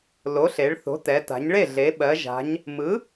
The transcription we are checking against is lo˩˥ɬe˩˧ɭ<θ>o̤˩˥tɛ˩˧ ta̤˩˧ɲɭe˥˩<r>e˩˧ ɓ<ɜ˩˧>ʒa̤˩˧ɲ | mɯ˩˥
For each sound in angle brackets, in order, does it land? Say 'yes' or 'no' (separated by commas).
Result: yes, no, yes